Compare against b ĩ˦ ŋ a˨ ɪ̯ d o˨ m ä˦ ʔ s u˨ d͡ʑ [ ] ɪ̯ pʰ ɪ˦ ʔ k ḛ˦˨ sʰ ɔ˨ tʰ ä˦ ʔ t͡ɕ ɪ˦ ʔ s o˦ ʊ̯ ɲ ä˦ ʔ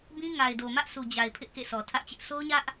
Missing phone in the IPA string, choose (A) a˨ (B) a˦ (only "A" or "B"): A